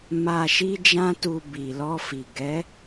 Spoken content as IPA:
m a˨ ʃ i˧ d͡ʒ ã˧ t u˨ b i˨ l ɔ˧ f i˨ ɡ ɛ˨˦

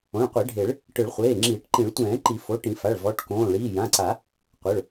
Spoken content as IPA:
õ˩˧˩ ɭ qʷ e˨˩˦ ɖʱ e˨˩˦ ɭ | ʈ ɯ˨˩˦ ɭ χʷ eː˩˧˩ ŋ͡ǁ iː˨˩˦ ʈ ǃ ĩ˨˩˦ ɭ tʷ ɛ̃ː˨˩˦ ǃ i˨˩˦ f o˩˧˩ ʈ ĩ˨˩˦ f a˩˧˩ ɭ v ɔ˩˧˩ ʈ k õː˩˧˩ ɭ iː˩˧˩ j ã˩˧˩ ǀ a˨˩˦ | qʷ ɤ˩˧˩ ɭ

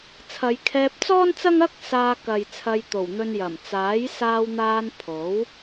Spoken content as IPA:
t͡sʰ ɐ˨˧ j kʰ ɛː˧ p̚ t͡s ɔː˥ n t͡s ɐ˥ ŋ ɐ˥ k̚ s aː˧ k ɐ˨ j t͡sʰ ɐ˧ j t̪ o˨˩ w n̪ ɵ˧ n j ɐ˨˩ m t͡s aː˨˥ j s aː˧ w n̪ aː˧ n pʰ o˨˥ w

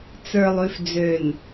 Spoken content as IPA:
t͡s ə˞˨ lˠ ʉ˨ f d͡z ø˨ n

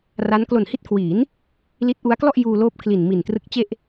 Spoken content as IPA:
r a˦˥ n k l o˨˩ n h i˦˥ t̚ kʰ w iː˩˦ n | l i˦˥ t̚ ʔ u˦˥ a̯ k l ɔ˥˩ ʔ j uː˧ l oː˦˥ p̚ kʰ l i˨˩ n m i˨˩ n t r ɯ˦˥ k̚ t͡ɕ e˥˩ ʔ

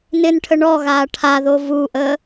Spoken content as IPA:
n ɪ n ʈʰ ə ɳ ɔ ɣ aː ʈʰ a ð o v u ʔ ə

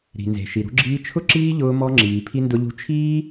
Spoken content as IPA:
ɾ i̤˨ n z e̤˨ ʃ i˨ ɾ ṳ˧ ɡ͡ǁ iː˧ t͡ʃʰ ʊ˦ ǁ iː˦ ʎ ʊː˧ m ɔ˧ ŋ͡ǁ iː˨ pʰ i˧ n d ʊ˧ ʎ ṳ˧ t͡ʃʰ iː˦

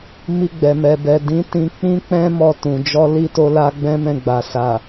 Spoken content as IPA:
m i˧ ɡ͡b ɛ˨ m ɛ˨ b ɛ˨ d ĩ˨˦ t ĩ˧ k͡p ĩ˦ k͡p ɛ̃˦ m ɔ˧ t ũ˨ d͡ʒ ɔ˧ l i˦ t o˧ l a˧ ɡ͡b ɛ̃˦ m ɛ̃˧ ɡ͡b a˨ s a˨

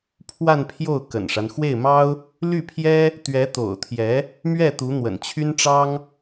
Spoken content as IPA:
pʰ w a˥˧ n pʰ j o˥˩ ʊ̯ k ə̰˨˩ n ʂ a˦ n x w e˥˩ ɪ̯ m ɑ˥ ʊ̯ | l y˥˩ pʰ j ɛ˥ | t̪ ɥ ɛ˧˥ t̪ o̰˨˩ ʊ̯ t̪ʰ j ɛ˧˥ | m ɥ ɛ˥˩ t̪ u˧˥ n̪ w ə̰˨˩ n t͡ɕʰ y˥ n ʈ͡ʂ ɑ˥ ŋ

